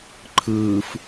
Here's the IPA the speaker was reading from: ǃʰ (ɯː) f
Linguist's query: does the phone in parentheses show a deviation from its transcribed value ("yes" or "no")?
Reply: no